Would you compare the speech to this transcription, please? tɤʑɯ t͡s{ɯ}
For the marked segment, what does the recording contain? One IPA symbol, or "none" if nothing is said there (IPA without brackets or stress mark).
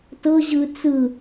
ɯ